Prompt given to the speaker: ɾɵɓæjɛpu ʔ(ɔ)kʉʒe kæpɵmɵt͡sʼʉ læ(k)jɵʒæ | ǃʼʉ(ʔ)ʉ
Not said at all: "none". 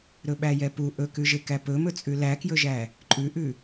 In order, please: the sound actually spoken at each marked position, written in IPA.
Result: ɵ, k, ʔ

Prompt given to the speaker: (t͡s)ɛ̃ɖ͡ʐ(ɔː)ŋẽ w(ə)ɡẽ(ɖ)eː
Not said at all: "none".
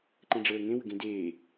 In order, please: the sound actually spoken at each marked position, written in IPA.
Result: ǃ, əː, ə, d

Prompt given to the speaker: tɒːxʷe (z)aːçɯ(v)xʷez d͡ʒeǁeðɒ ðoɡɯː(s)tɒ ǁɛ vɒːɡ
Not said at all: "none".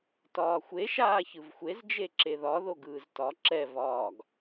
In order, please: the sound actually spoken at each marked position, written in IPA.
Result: ʃ, v, z

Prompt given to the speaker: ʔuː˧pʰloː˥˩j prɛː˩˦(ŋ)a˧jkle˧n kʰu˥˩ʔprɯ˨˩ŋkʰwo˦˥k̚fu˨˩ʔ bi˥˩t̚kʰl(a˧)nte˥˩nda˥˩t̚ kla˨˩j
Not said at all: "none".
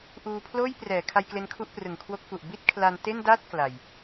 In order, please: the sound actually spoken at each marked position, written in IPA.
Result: kʰ, a˧

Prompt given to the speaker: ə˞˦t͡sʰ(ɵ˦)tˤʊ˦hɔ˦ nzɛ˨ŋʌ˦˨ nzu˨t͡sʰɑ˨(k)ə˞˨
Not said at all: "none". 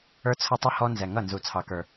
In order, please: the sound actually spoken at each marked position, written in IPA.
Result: ʊ˦, k

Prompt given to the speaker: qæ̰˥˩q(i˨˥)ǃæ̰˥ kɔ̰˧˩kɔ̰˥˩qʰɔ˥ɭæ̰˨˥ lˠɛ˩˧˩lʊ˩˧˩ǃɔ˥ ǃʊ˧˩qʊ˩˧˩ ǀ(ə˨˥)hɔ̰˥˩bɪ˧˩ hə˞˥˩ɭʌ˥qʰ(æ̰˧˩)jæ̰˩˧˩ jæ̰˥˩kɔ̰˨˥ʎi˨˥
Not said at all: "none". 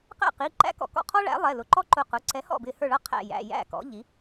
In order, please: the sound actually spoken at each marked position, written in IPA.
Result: i˩˧˩, ɛ˨˥, æ̰˧˩

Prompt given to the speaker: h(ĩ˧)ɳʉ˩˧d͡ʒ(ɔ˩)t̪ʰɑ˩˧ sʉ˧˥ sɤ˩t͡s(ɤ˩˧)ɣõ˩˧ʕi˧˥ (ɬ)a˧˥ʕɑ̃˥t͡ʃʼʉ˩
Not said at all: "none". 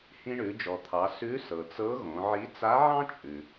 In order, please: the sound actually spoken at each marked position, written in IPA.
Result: ĩ˧, ɔ˩, ɤ˧˥, t͡s

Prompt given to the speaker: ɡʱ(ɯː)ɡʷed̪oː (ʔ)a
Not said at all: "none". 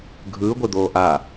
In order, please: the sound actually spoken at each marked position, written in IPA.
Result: ɯː, ʔ

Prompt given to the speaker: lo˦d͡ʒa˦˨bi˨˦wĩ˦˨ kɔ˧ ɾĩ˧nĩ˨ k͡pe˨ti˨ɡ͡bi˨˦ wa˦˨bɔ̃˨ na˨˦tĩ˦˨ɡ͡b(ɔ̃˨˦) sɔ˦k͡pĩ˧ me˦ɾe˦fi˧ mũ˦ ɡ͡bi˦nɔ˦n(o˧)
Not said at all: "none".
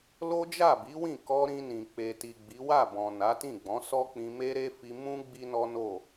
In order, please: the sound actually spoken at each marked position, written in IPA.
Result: ɔ̃˨˦, o˦˨

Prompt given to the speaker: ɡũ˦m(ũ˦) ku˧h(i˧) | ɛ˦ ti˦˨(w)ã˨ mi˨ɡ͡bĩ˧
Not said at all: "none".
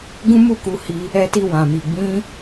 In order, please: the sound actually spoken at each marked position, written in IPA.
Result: u˦, i˧, w

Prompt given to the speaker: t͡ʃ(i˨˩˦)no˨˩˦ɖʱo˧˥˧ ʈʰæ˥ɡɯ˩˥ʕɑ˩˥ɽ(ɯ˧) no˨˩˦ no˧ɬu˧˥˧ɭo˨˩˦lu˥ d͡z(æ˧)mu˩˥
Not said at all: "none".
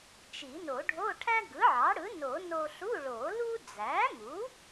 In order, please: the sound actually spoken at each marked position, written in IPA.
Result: i˨˩˦, ɯ˩˥, æ˩˥

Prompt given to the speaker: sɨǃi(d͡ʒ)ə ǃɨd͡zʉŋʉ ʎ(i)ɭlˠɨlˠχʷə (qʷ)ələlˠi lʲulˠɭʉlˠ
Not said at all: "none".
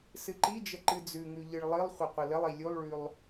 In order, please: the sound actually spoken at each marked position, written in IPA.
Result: d͡ʒ, ɨ, qʷ

